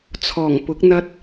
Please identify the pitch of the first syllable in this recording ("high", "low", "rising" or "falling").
low